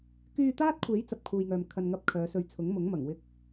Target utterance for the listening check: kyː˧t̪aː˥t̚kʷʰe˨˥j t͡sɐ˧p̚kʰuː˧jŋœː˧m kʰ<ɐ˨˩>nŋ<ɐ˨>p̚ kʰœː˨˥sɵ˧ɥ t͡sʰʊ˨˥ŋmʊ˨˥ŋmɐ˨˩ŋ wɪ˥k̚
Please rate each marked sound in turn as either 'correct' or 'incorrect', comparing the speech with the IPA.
incorrect, incorrect

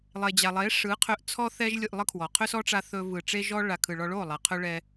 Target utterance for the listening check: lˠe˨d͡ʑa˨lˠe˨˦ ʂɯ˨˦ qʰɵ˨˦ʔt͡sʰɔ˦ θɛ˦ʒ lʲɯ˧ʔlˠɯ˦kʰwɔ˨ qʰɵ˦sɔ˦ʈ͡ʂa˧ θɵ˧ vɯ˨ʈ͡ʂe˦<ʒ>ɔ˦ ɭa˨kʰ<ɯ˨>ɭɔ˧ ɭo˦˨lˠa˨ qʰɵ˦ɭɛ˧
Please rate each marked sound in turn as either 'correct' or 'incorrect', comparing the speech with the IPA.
correct, correct

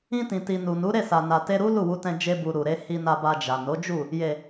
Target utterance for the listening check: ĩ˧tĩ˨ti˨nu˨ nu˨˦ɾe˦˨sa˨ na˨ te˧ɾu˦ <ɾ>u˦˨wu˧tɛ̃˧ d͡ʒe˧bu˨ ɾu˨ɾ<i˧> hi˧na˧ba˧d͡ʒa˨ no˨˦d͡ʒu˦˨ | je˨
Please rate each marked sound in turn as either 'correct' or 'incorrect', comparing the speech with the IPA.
incorrect, incorrect

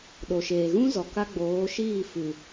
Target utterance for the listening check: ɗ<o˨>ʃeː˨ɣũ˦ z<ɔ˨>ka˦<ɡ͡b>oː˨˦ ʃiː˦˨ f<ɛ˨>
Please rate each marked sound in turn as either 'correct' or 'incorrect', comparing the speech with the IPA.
correct, correct, correct, incorrect

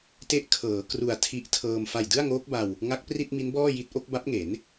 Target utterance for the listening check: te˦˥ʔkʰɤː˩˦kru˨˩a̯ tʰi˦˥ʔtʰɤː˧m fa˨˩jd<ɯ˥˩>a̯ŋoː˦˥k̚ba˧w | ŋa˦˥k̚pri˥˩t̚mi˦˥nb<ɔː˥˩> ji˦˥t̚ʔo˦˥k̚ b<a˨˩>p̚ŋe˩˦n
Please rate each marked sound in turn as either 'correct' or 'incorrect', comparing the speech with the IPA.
correct, correct, incorrect

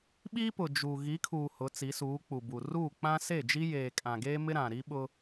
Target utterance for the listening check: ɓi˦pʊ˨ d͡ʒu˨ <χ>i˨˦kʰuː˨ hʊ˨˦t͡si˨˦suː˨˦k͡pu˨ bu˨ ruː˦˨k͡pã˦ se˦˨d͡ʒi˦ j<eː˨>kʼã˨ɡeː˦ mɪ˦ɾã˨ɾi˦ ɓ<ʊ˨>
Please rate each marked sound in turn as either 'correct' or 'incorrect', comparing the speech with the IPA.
incorrect, correct, incorrect

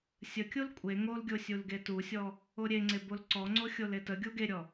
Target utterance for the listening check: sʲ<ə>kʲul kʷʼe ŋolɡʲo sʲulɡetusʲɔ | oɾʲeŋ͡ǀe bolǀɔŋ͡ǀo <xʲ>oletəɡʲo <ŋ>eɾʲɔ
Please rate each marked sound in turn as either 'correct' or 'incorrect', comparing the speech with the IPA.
correct, correct, incorrect

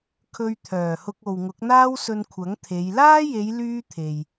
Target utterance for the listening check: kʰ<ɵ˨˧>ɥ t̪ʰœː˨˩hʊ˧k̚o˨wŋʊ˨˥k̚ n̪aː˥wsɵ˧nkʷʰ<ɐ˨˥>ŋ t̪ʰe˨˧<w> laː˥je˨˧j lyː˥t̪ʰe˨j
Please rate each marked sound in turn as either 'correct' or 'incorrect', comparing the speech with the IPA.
incorrect, correct, incorrect

